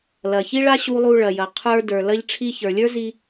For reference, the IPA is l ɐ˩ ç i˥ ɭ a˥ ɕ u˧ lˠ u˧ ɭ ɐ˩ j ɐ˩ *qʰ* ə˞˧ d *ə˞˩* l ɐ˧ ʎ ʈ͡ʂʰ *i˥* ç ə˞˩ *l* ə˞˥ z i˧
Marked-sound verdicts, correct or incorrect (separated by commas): correct, correct, incorrect, incorrect